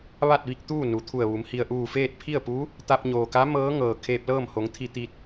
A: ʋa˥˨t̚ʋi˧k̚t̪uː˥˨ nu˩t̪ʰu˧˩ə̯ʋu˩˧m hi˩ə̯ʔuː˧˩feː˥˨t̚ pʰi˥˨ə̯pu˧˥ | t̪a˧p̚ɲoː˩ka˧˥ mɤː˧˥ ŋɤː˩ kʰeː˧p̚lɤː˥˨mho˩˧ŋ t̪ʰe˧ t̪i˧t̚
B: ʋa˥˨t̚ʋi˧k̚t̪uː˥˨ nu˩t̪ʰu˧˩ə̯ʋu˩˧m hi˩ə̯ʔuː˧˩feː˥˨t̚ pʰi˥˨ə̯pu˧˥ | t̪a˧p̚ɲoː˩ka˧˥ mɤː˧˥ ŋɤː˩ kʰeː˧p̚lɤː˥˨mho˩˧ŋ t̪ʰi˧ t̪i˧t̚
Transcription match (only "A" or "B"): B